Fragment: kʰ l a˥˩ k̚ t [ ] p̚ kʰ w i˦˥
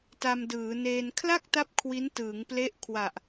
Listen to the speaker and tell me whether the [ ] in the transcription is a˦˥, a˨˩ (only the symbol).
a˦˥